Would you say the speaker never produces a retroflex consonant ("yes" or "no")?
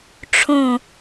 no